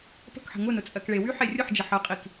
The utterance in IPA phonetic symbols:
p ə̤ k ħ ə̤ ŋ ʊ n ʊ t͡sʼ ɜ k ɭ e w y ħ e rʲ ʊ ħ d͡ʒ ə ħ ə qʼ i k

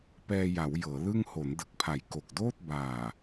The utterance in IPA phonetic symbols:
p ɛː˧ j a˩˦ w j ɤː˩˦ l ɯ˥˩ ŋ h o˩˦ n d ɯ˨˩ k̚ pʰ a˨˩ j k o˨˩ k̚ d oː˥˩ t̚ b aː˨˩

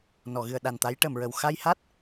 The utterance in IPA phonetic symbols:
n ɔ˨˩˨ ɣ ɨ˨˩˨ ə̯ ɗ a˨˩ n t̪ a˧˥ j ʈ ə˨˩˨ m ɹ ə˨˩ w x a˧ j h a˦˥ t̚

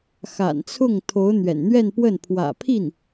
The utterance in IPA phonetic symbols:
x a̰˨˩ n t͡sʰ ʊ˥˩ ŋ t̪ʰ o˧˥ ʊ̯ n̪ ɥ ɛ̰˨˩ n n̪ ɥ ɛ˥˧ n p w ə˥˩ n pʰ w ä̰˨˩ pʰ i˥˩ n

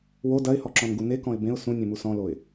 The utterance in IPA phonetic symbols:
w o d ɐ ɪ̯ h ɔ ǁ ɔ̃ n ɡ u n e k ɔ̃ ɪ̯ b ẽ ʊ̯ s ũ nʲ ẽ m u s ɔ̃ l o ɪ̯

